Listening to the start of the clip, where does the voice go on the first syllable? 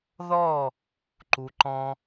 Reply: falling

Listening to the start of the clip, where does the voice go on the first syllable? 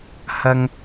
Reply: high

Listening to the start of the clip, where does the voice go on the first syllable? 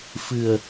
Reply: low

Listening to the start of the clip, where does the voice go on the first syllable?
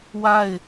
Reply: falling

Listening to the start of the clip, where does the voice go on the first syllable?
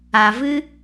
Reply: low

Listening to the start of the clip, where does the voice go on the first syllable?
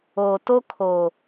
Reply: low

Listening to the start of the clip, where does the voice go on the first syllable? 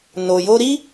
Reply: low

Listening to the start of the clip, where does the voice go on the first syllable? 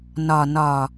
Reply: low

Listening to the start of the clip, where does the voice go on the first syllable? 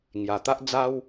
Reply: low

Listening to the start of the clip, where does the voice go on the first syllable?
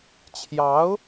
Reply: rising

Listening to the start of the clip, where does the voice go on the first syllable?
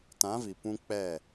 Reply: rising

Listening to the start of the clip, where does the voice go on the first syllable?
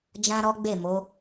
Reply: high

